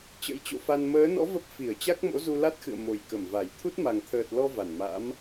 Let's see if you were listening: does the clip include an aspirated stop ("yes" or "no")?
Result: yes